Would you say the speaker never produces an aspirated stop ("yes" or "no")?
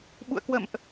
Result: yes